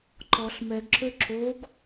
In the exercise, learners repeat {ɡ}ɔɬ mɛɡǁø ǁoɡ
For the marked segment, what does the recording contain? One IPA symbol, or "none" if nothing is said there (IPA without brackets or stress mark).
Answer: ǃ